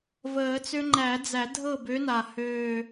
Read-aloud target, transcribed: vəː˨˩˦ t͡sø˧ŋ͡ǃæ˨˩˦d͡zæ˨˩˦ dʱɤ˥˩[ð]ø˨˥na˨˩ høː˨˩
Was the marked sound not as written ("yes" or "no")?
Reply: yes